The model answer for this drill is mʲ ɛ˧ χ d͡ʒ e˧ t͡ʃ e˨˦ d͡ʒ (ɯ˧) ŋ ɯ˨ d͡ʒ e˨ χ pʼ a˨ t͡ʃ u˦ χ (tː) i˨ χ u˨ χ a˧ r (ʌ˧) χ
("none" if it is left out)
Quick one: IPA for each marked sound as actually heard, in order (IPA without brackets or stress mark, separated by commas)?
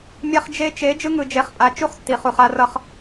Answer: ɯ˧, tː, ʌ˧